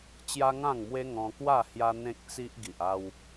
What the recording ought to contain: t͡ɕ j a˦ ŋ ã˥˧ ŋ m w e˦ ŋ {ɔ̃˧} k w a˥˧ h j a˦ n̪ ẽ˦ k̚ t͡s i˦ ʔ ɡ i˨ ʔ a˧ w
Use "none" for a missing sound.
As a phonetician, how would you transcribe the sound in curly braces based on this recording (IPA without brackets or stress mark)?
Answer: ɔ̃˧